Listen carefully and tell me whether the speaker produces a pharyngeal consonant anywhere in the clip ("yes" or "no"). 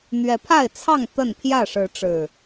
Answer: no